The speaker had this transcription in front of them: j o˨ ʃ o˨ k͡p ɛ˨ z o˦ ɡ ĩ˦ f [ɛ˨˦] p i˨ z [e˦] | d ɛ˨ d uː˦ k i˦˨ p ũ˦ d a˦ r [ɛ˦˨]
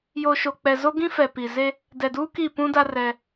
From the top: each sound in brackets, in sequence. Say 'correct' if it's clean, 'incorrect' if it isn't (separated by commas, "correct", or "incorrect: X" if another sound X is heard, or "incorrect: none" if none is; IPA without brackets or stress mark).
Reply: incorrect: ɛ˨, correct, incorrect: ɛ˦